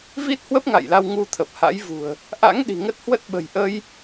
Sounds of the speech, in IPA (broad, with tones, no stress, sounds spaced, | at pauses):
v i˦˥ t̚ h w ə˦˥ p̚ ŋ a̰˧˨ j l a˧ w ŋ u˧ t̪ʰ ə˨˩ p̚ h a̰˧˥ j v ṳ˨˩ ə̯ | ʔ a̰˧˥ ŋ ɗ i̤˨˩ ŋ ə˦˥ t̚ h w ə˦˥ t̚ ɓ ə̤˨˩ j ʔ ə˧ j